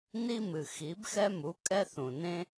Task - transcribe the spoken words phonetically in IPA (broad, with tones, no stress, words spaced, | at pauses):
ni˦ mɨ˨ xi˨˦bxɛ˦mu˨˦ kʼɛ˦θũ˨nẽ˦